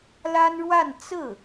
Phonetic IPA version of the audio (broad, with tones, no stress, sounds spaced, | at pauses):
l a˥ n ɻ w a˥˧ n t͡s ɹ̩˥˩